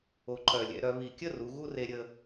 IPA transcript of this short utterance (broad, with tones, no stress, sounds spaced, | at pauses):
o˧˩ ǃ œ˧˩ lʲ ɛ̰˧ ɾ œ˧ β i˧˩ kʲ ə˥˧ r u˩˧ ɣ u˥ r e˧ ɾʲ ə˧